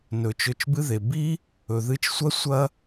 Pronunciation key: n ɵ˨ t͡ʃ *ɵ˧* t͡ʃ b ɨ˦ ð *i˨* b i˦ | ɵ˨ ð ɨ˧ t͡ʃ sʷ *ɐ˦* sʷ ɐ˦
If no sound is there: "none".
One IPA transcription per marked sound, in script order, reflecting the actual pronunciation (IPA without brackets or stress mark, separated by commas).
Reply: ɵ˧, e˨, ɐ˦